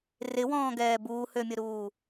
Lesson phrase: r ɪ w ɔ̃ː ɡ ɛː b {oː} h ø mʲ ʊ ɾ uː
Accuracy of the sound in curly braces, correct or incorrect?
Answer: incorrect: uː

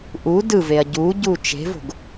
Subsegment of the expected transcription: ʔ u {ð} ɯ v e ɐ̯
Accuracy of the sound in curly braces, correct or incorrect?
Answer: incorrect: d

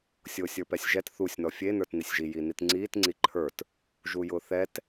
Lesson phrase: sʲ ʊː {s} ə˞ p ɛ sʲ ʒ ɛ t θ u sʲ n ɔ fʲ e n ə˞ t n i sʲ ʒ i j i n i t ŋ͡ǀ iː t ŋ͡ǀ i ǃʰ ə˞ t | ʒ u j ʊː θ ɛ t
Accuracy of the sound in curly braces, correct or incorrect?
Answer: incorrect: sʲ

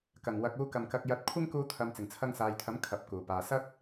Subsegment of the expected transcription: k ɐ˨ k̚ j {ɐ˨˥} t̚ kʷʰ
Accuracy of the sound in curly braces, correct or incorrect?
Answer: correct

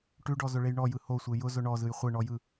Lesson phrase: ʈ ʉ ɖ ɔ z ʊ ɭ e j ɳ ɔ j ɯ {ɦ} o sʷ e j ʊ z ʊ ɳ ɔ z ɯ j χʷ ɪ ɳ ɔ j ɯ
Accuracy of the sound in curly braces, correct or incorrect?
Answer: incorrect: h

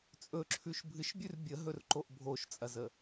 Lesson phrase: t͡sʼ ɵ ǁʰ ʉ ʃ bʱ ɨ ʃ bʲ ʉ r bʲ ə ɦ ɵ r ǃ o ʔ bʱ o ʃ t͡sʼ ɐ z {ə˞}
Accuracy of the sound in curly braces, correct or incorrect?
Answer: incorrect: ə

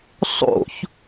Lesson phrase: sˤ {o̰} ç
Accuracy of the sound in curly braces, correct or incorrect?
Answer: correct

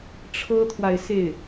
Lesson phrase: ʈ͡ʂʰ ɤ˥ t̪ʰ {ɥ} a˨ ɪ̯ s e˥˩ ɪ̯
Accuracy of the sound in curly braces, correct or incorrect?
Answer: incorrect: w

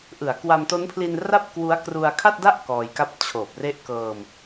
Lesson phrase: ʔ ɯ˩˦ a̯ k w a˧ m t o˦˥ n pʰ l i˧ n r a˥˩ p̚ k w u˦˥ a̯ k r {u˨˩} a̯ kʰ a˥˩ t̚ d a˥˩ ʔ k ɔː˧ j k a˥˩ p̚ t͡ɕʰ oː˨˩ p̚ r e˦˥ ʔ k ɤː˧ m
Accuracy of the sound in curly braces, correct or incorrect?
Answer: incorrect: u˧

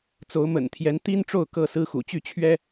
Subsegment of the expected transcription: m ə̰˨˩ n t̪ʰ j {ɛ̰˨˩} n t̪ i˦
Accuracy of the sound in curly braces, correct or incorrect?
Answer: incorrect: ɛ˨˦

